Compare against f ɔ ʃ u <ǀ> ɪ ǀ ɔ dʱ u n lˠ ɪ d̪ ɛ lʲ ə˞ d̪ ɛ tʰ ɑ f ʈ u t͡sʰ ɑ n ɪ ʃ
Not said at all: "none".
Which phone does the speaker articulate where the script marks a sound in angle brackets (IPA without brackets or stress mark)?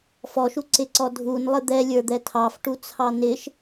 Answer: ǀ